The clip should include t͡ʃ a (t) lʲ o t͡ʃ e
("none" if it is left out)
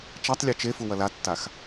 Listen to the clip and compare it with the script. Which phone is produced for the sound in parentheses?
tˤ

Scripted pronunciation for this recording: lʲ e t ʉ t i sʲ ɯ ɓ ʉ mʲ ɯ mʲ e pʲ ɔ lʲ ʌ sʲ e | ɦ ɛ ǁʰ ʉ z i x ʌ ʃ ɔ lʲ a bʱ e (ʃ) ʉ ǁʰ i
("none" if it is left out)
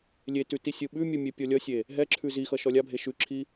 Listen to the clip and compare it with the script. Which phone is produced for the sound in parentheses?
ʃ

